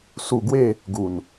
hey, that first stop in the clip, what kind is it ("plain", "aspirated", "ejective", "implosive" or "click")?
plain